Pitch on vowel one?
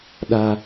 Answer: high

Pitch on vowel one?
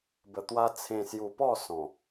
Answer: low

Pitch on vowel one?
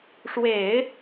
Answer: low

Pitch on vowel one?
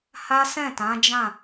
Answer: high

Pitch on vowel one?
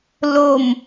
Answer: low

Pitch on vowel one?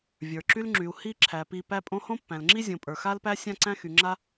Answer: low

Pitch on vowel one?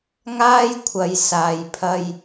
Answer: high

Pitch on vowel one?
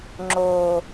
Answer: low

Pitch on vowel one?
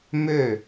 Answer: falling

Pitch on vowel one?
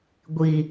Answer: low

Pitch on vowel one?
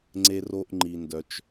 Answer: high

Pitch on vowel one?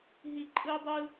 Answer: falling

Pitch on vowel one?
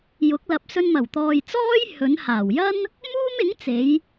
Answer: rising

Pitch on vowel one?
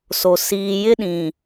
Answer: low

